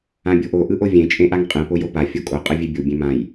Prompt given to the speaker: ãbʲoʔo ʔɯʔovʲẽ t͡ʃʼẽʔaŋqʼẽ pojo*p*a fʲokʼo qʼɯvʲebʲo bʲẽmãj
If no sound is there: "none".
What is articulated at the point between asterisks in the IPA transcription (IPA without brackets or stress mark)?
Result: p